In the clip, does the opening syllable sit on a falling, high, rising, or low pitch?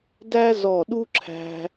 high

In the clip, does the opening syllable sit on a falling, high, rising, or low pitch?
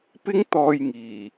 high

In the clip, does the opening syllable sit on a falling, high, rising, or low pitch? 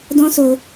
high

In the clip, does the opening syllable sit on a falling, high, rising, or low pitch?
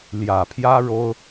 low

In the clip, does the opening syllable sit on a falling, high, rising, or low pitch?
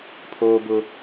high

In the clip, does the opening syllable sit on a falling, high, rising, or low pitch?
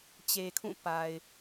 low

